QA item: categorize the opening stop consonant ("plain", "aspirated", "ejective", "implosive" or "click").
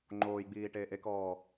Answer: click